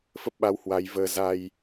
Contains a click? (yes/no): no